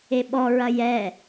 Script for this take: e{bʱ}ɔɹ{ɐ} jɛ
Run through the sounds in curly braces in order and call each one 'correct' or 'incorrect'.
incorrect: ɓ, correct

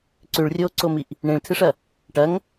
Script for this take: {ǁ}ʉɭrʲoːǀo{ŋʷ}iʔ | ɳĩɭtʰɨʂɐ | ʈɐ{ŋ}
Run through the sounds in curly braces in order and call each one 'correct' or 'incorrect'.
incorrect: ǀ, incorrect: m, correct

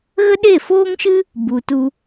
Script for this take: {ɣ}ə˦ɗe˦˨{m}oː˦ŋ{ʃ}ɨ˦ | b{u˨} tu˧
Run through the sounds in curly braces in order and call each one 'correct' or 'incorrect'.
correct, incorrect: f, correct, correct

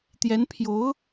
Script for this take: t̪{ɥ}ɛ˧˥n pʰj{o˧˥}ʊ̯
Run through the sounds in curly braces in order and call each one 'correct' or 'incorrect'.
incorrect: j, correct

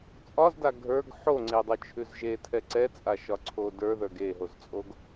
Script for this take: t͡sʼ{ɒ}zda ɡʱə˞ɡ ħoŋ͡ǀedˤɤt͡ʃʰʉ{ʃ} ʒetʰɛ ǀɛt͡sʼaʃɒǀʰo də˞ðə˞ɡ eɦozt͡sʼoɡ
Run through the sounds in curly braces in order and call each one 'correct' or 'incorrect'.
correct, incorrect: z

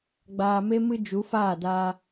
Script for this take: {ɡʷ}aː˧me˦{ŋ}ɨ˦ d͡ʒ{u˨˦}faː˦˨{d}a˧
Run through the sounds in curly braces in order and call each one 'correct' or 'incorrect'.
incorrect: ɡ͡b, incorrect: m, correct, correct

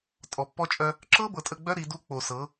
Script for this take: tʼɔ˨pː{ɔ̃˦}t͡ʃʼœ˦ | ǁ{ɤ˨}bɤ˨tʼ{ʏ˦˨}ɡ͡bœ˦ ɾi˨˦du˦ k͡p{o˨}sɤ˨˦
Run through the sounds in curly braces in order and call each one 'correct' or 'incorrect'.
incorrect: ɔ˦, incorrect: ɤ˦, incorrect: ə˦˨, correct

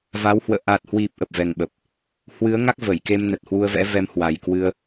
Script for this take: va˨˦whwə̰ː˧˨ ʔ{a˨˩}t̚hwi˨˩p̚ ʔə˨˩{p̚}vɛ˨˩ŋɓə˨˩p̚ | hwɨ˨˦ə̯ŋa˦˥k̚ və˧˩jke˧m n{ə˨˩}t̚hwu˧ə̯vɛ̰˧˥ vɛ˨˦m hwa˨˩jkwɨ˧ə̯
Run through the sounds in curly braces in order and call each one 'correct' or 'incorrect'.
correct, correct, correct

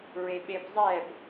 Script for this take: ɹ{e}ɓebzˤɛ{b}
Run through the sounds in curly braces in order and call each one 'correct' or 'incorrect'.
correct, correct

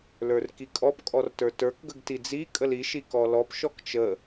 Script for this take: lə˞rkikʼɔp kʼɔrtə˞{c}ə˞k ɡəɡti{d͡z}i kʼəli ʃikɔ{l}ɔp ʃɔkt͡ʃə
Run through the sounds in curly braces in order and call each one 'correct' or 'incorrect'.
incorrect: t, correct, correct

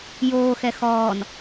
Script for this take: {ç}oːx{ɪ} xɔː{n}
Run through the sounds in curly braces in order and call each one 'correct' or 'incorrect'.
incorrect: j, incorrect: ɛ, correct

